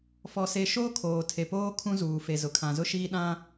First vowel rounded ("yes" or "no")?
yes